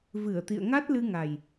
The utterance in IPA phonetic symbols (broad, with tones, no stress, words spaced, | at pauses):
vɨ˧˩ə̯t̪ḭ˧˨ə̯ŋa˦˥t̚ lɨ˧ŋa˨˩j